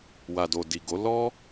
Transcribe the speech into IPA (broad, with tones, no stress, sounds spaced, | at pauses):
w a˨ d o˨ d i˨ ɡ o˨˦ l ɔ˦